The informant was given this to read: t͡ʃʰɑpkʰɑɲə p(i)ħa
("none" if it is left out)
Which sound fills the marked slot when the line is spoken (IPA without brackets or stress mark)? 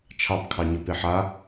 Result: e